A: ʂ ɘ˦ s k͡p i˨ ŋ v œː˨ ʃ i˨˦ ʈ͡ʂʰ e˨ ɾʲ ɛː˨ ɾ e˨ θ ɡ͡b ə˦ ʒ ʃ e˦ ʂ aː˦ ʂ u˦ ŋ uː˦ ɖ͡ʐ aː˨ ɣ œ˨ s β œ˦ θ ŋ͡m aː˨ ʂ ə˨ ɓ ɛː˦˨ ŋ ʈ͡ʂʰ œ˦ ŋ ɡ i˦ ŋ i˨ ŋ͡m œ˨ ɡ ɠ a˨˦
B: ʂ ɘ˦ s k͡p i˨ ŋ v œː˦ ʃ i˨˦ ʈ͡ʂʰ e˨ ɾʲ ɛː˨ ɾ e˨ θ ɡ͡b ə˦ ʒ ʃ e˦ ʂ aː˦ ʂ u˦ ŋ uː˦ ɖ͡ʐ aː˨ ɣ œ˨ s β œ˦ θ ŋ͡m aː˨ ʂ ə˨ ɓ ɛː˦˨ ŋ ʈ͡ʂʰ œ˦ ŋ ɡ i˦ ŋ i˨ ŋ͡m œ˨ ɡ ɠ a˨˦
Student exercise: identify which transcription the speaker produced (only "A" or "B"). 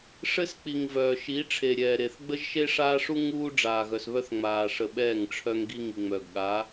A